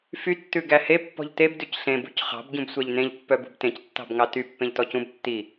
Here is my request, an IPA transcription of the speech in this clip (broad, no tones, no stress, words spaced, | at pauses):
fy tːʉɡæhe pːɔ̤ʎteb dʉcɬẽb ṳcχɑ̤b ɟũbsʷæʎnẽʎ pːœbṳbtẽc tːɑ̤bŋɑty pːẽʎtɔcũb tːi